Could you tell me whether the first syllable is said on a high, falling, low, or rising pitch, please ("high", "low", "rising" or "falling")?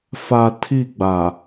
low